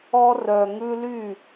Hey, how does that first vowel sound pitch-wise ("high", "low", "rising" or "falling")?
high